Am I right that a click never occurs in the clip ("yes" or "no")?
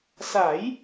yes